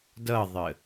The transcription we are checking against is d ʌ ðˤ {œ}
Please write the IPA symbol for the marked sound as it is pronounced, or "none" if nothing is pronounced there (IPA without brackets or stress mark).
ə